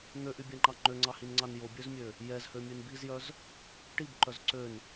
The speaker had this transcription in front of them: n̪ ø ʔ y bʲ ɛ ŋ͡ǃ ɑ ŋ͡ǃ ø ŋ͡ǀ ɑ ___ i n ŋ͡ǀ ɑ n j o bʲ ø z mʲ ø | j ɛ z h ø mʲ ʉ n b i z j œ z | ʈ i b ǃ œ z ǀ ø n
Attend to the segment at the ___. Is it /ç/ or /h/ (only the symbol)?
h